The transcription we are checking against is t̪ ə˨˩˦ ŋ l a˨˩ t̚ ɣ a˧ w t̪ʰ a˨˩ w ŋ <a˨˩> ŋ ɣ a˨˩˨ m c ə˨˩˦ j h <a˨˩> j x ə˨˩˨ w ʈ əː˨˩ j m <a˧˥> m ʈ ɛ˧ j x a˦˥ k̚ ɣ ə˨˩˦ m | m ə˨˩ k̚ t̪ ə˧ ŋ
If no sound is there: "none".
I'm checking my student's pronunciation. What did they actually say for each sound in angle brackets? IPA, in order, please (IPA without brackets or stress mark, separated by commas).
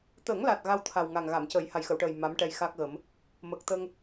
a˨˩, a˨˩, a˧˥